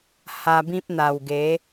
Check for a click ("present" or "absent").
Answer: absent